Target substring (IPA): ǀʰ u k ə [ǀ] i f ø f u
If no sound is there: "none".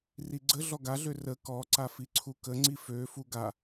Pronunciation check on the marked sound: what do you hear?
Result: ŋ͡ǀ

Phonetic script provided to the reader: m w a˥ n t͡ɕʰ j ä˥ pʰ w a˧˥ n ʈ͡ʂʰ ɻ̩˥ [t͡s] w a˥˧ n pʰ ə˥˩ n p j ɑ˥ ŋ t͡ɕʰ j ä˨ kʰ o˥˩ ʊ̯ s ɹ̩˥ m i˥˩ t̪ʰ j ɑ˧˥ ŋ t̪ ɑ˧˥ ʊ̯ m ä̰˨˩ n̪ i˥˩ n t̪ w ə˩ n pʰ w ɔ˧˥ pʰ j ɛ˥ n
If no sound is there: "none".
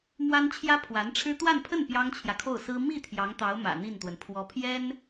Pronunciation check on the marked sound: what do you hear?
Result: t̪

